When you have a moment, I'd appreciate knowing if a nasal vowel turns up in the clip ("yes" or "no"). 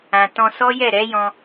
yes